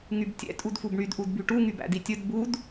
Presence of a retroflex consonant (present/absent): present